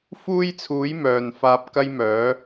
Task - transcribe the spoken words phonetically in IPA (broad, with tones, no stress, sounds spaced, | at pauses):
f uː˥ j t͡sʰ uː˨˥ j m œː˨ n f aː˧ p̚ k ɐ˥ j m œː˨˥